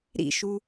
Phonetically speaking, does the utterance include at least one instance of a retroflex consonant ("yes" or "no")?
no